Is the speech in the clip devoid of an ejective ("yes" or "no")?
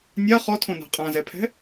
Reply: no